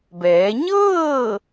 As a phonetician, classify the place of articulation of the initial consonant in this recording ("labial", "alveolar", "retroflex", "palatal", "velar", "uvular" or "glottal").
labial